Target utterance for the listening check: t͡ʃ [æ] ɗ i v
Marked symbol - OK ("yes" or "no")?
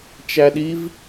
yes